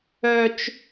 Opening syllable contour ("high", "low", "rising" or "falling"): high